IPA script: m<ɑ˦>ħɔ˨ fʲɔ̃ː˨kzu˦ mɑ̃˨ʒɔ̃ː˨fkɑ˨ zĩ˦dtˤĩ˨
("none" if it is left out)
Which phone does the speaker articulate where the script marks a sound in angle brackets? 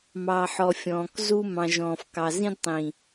ɑ˨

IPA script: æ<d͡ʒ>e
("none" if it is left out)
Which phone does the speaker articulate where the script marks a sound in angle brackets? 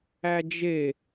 d͡ʒ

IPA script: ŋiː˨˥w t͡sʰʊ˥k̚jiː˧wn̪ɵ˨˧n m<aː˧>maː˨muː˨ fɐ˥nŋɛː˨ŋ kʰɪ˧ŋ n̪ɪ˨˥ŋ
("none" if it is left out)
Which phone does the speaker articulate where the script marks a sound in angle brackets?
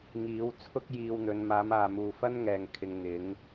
aː˨˧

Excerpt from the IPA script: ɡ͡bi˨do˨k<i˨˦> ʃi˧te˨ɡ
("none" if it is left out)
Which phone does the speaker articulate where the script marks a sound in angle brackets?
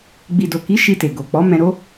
i˨˦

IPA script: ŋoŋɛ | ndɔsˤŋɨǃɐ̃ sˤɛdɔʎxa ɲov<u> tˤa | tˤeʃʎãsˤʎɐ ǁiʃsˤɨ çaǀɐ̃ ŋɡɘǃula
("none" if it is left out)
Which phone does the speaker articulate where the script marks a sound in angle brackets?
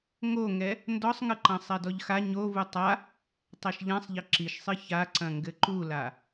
u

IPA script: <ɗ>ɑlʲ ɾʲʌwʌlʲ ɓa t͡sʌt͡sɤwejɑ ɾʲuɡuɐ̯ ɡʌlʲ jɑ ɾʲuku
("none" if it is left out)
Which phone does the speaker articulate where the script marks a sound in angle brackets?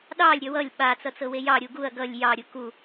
ɗ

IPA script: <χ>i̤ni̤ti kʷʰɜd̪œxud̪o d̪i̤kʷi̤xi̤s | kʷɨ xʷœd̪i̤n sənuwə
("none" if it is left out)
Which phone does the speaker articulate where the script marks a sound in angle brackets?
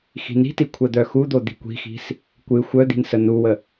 x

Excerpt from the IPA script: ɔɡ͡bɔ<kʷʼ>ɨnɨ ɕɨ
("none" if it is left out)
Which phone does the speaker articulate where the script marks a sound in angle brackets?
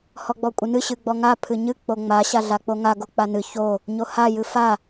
kʷʼ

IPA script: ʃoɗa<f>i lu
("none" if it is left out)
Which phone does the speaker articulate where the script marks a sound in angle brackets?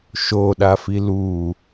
f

